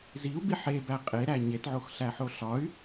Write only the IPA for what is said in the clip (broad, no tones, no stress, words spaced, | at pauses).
ziu̯bi ħebæ qʼeɾæ ɲetʕoxɬæħo ɬɒy̯